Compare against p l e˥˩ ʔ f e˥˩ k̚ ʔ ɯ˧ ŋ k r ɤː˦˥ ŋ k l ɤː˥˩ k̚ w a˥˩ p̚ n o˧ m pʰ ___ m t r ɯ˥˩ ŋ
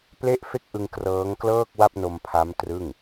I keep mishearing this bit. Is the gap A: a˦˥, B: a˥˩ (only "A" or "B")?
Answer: A